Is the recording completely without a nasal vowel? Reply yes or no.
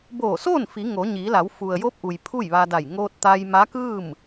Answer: yes